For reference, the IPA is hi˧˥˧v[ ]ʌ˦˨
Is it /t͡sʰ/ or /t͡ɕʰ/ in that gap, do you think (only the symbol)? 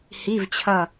t͡ɕʰ